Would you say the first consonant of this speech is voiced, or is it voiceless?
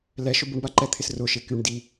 voiced